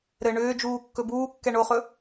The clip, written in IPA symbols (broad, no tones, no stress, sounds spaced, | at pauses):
ɾ ɘ ɳ ʏː d͡ʒ uː kː ɵ b uː kː ɛ ɳ o χ ɵ